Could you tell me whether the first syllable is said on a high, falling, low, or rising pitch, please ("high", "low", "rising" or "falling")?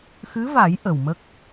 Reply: rising